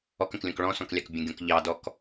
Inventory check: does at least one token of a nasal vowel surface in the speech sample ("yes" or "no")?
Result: yes